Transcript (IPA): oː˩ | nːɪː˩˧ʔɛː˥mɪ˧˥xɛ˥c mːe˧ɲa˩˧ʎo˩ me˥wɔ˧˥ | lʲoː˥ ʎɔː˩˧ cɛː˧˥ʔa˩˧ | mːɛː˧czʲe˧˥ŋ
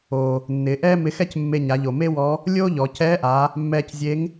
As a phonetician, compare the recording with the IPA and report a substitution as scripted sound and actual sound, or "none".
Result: ɔː˩˧ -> ɔ˩˧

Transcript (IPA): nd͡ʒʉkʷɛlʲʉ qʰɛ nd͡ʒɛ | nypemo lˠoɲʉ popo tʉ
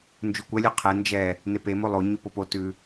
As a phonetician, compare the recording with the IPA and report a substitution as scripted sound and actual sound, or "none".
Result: y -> e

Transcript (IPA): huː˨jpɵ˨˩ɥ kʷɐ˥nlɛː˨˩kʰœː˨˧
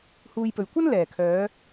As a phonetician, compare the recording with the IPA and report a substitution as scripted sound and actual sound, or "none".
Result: none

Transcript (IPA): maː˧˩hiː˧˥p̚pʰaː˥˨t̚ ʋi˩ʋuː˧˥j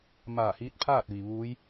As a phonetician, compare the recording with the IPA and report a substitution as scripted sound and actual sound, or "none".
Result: p̚ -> t̚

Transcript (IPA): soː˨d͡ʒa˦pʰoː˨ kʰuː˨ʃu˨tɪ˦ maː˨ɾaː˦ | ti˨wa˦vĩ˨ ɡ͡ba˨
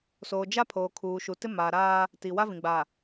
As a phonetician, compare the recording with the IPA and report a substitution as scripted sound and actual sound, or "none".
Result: none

